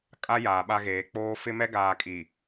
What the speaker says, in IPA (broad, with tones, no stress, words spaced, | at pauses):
kʼa˦ jaː˨ɓa˦ɣeː˨˦ k͡poː˦ fɪ˦ mɛ˦ ɡaː˨kʼi˨